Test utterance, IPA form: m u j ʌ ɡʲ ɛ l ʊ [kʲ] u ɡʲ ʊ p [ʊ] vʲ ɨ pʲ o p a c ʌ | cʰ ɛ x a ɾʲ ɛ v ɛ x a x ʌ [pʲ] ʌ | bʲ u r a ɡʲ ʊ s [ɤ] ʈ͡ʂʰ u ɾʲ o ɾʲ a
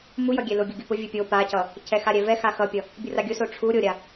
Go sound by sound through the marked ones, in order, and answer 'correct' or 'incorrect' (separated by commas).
incorrect, correct, correct, incorrect